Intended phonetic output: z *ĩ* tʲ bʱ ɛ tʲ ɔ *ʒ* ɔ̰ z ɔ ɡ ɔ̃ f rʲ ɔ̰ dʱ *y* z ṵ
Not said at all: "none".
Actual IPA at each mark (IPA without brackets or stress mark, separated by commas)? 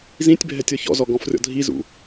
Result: ĩ, ç, i